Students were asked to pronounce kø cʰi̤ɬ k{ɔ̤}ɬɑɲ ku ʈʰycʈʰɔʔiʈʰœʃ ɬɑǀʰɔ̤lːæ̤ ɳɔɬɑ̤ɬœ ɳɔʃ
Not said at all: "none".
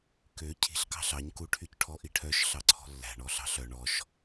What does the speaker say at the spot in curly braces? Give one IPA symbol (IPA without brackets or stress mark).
ɑ̤